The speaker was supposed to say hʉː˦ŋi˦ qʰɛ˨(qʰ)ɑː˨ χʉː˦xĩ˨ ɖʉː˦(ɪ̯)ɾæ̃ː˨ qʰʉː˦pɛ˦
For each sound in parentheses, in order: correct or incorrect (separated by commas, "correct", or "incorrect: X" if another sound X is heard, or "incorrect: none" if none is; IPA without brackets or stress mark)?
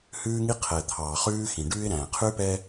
incorrect: t̪ʰ, correct